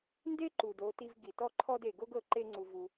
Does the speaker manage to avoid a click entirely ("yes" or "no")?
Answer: no